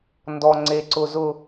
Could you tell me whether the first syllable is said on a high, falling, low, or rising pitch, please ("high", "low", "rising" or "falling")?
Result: low